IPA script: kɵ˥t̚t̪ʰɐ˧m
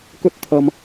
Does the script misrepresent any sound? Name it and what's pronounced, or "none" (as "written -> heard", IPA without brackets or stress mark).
none